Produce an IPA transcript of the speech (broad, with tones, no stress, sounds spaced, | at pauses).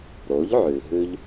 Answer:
ɾ o˩˥ ʎ ʕ ʉ˩ ɦ ʉ˧ ʎ